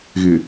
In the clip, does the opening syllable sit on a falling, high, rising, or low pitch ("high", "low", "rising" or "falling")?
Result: low